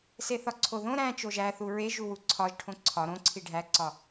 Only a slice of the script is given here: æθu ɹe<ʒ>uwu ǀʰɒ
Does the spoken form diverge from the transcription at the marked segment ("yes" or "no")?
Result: no